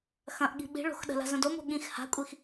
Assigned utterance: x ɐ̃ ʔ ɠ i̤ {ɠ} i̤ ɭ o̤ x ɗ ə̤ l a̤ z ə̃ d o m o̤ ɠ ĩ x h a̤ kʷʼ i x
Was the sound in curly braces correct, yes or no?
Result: no